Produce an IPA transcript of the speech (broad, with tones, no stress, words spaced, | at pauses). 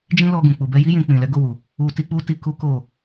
d͡ʒĩ˦lɔ˧ɡũ˨ k͡pu˨bɛ˧ji˦ jĩ˧k͡pĩ˨ lɛ˨˦ɡo˦˨wu˨ | u˧ti˦k͡pu˦ti˧ ku˦ko˦˨